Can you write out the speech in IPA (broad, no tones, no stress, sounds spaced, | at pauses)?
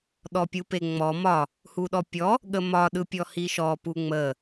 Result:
ɗ ɔ pʲ u p e ŋ͡m ɔ m ɒ | h u ɗ ɔ pʲ ɔ | ɠ ə m ɒ ɗ ɯ pʲ ɔ h i ʃ ɔ p u ŋ͡m ə